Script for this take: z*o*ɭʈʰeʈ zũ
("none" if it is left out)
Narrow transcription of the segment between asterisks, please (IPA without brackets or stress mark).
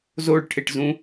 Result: o